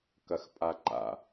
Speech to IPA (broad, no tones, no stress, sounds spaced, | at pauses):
k ɐ x pʼ a ǃ a̰